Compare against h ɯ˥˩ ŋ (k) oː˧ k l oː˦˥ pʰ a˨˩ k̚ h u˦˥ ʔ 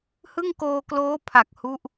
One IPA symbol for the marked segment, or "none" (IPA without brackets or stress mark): k